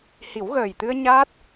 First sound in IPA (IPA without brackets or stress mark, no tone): h